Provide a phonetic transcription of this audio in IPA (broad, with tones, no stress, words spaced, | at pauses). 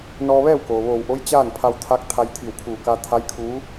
nɔː˧ʋɛː˥˨wkoː˩ ʋoː˧˩wʔo˧˥j t͡ɕaː˥˨npʰa˧wt̪ʰa˧˥k̚ t̪ʰa˧jt̪ʰi˧˩wkʰuː˧˩ka˧ t̪ʰa˧˥jkʰu˧˥